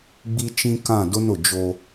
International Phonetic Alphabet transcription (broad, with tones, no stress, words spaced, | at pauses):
ɡ͡bi˦t͡ʃĩ˦ kã˦˨dʊ˦nʊ˨ d͡ʒo˦